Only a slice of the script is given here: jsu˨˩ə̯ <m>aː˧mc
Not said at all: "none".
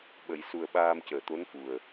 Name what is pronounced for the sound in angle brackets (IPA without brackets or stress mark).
ɓ